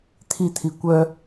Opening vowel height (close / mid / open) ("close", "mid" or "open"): close